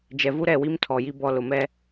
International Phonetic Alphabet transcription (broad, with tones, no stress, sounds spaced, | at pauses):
d͡ʒ ɛ˨ v u˦ ɾ ɛ˦˨ w i˦ m tʰ ɔ˨ j i˦ b ɔ˦ l ʊ˨ m ɛ˦